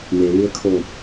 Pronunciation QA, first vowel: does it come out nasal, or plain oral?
oral